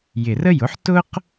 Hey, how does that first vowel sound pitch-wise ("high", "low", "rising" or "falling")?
low